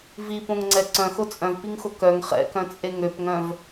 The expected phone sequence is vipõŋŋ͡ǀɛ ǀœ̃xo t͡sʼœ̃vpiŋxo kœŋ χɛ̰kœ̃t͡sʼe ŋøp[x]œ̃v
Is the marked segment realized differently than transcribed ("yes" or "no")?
yes